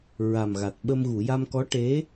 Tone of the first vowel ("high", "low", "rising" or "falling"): low